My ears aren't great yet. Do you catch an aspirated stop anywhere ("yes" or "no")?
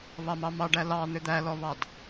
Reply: no